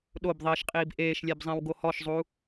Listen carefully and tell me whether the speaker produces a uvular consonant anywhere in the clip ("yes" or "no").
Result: yes